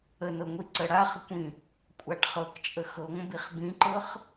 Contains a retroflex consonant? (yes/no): yes